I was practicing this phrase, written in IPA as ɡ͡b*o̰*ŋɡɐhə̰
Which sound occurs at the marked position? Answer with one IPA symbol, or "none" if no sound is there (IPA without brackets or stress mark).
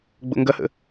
o̰